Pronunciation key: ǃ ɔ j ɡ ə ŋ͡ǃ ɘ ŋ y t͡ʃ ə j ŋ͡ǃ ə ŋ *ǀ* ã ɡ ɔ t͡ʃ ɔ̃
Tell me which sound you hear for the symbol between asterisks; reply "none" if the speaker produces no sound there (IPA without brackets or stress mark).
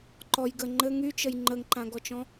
ǃ